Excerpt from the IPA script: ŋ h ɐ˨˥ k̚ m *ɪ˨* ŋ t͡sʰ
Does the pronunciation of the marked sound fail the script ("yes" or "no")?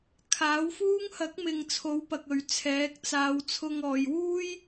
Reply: no